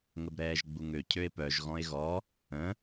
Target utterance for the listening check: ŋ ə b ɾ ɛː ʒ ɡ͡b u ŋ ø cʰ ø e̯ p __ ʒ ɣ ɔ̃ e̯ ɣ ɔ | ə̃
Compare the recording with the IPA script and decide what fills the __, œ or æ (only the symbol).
œ